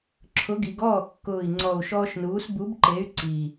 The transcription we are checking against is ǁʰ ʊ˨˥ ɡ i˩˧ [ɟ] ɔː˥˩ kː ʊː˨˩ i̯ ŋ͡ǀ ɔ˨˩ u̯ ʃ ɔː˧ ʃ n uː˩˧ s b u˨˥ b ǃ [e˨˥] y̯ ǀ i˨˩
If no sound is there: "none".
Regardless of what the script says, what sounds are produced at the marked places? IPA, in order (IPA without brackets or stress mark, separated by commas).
ɡ, e˨˥